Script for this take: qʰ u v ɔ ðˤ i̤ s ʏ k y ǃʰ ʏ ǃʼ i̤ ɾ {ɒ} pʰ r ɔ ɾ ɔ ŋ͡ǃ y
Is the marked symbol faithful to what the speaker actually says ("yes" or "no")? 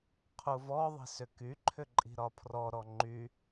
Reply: yes